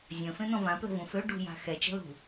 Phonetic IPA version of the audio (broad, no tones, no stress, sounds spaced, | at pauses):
zʲ ə̃ f ẽ n̪ ɔ̃ v ã p l ə̤ v ũ f ø ɖ ṳ j a̤ x ɛ t͡ʃ ə̤ l ṳ